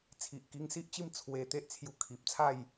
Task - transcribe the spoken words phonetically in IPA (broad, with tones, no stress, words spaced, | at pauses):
t͡sʰi˨ʔki˧ŋsi˦ʔt͡ɕi˥˧m t͡sʰwe˧ t̪e˦ʔt͡sʰju˧ kʰi˨p̚t͡sʰa˥˧j